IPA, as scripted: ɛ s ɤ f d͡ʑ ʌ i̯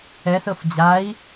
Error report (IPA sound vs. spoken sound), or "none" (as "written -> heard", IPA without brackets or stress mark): ʌ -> a